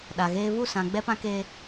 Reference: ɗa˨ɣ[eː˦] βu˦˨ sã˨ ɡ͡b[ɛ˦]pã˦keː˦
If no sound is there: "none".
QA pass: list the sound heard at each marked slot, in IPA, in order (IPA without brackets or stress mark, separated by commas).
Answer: eː˦, ɛ˦